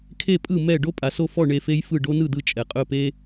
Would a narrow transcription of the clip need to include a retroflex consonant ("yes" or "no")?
yes